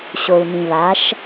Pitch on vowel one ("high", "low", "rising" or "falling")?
low